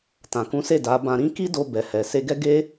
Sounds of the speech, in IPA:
tã˨kũ˨˦se˦˨ da˨˦ bã˧ɾĩ˦ ki˦do˧ bɛ˨hɛ˨ se˧ɡɛ˦ ɡe˦

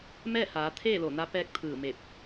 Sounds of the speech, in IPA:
mɛː˥˨haː˩˧ t̪ʰeː˥˨ lo˧˩na˧˥pɛː˧˥k̚ t̪ʰɯː˧˩me˧˩p̚

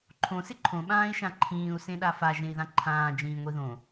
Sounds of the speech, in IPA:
ǃʰõ sɪǃʰõ ɓãːi̯ʃãǃʰĩːu̯ sẽɗafa ʒẽi̯ðãǃʰãː d͡ʒĩːŋʷiðõ

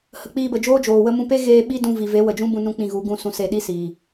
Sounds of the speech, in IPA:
hə˨k͡piː˧bə˨d͡ʒoː˦ d͡ʒoː˨wə˦mũ˦ pe˦ɣeː˧ ɓi˦dũ˧vi˨ ve˨˦wə˨d͡ʒũ˦bũ˧ nũ˦k͡pĩ˧ɣu˨˦ɡũ˧ sũ˧se˧ɗi˦ siː˨

